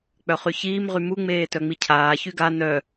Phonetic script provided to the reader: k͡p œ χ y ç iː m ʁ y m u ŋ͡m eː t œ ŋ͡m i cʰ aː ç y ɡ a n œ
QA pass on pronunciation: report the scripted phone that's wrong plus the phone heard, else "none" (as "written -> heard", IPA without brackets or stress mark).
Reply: none